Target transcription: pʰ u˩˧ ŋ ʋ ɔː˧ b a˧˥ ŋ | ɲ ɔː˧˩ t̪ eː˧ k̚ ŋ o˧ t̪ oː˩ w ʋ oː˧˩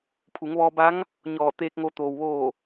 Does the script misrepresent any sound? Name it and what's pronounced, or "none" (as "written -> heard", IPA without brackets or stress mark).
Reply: none